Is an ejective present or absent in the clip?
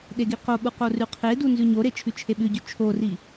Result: absent